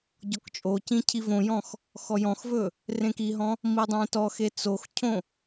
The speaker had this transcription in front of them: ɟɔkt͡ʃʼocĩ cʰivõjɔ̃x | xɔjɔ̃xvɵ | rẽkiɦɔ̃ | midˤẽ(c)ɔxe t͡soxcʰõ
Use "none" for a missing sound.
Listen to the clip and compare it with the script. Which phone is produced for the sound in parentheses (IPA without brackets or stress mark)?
t